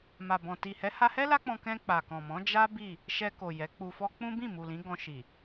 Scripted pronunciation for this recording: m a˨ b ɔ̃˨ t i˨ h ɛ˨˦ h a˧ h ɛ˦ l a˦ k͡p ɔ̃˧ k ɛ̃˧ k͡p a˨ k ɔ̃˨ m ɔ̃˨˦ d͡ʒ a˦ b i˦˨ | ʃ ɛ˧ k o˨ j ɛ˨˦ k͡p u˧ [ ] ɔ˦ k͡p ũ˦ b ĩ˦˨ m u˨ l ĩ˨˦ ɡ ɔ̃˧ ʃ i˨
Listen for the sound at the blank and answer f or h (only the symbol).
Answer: f